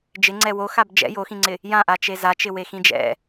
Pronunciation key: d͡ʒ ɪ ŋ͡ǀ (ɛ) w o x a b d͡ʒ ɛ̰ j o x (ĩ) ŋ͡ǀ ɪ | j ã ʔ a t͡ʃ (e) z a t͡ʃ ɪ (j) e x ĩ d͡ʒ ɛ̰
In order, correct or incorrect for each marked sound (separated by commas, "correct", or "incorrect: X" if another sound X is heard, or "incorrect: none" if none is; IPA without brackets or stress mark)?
correct, correct, correct, incorrect: w